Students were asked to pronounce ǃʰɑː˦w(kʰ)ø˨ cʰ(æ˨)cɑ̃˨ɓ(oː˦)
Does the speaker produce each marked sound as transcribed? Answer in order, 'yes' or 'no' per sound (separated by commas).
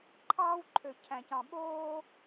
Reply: no, no, yes